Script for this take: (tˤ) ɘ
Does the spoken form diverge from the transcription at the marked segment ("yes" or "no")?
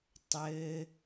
no